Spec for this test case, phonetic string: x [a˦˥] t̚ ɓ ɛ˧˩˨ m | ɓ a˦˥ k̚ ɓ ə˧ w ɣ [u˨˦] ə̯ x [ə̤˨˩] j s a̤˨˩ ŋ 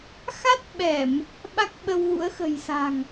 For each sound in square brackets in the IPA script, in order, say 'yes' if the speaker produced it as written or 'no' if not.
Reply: yes, no, yes

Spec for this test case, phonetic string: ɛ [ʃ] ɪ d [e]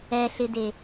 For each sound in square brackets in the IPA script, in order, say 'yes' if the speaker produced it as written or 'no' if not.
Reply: no, yes

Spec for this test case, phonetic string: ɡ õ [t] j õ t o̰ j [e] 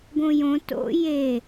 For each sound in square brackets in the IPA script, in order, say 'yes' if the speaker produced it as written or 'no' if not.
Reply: no, yes

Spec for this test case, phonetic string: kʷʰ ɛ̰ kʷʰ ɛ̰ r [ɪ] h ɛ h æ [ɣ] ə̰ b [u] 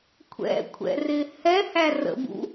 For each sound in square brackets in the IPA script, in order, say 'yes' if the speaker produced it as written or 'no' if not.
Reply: yes, no, no

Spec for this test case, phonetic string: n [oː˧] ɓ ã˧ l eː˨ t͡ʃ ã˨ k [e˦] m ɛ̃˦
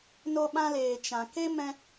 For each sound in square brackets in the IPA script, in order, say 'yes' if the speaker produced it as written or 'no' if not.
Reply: no, yes

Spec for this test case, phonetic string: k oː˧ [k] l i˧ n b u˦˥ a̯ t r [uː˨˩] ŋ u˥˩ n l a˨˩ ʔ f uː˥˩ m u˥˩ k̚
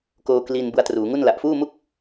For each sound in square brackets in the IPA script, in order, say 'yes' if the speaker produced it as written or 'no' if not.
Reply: yes, no

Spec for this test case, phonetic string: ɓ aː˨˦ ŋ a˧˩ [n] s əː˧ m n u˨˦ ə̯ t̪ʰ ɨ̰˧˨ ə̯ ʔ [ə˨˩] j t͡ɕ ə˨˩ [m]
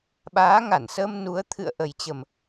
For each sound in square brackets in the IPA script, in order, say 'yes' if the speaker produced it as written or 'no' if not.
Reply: yes, yes, yes

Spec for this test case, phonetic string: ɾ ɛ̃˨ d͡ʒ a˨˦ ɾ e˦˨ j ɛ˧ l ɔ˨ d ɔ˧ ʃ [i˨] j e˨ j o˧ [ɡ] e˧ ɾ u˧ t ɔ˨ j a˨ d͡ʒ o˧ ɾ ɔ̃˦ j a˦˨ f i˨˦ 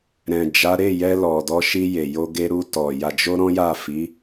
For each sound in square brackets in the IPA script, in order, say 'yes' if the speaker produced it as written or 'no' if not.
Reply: no, yes

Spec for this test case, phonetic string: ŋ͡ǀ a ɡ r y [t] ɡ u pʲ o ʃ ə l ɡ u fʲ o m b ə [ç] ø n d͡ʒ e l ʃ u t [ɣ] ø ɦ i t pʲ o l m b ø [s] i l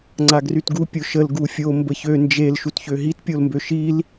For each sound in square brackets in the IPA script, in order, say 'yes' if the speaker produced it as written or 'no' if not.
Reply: yes, yes, no, no

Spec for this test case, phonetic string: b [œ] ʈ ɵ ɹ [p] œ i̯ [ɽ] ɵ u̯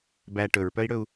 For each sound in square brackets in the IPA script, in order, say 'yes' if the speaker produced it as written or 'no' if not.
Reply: no, yes, yes

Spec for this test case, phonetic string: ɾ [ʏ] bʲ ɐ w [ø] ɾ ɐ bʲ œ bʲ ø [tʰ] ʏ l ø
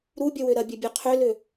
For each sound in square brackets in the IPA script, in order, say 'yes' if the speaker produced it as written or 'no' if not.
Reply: no, yes, no

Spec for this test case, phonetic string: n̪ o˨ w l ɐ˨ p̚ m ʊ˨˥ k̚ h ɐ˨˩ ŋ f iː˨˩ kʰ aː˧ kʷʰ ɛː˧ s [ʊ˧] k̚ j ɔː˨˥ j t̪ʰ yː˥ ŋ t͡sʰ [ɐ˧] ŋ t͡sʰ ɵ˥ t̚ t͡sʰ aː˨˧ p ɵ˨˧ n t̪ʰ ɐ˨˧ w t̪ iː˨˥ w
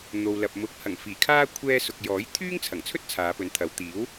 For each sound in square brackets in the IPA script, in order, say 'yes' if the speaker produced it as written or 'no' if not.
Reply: no, no

